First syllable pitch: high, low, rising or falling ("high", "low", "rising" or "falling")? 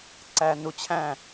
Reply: low